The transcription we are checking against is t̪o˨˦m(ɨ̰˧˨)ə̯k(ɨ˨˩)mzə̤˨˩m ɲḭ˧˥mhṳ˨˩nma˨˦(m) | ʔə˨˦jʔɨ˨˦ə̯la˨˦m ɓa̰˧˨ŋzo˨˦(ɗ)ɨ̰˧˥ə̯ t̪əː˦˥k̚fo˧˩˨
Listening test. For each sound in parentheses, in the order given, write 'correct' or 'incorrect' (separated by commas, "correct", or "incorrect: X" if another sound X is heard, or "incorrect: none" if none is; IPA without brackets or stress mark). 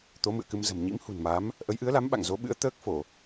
correct, incorrect: ɨ˧, correct, incorrect: ɓ